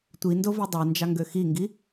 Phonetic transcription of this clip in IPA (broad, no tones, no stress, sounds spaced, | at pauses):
tʷ i n d o v i dˤ ɛ n d͡ʒ ɑ ŋ ɡ ø x i ŋ ɡ i